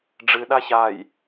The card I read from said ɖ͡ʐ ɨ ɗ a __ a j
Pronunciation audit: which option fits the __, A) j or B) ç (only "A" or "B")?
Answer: B